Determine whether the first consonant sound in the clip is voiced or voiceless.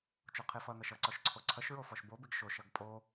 voiceless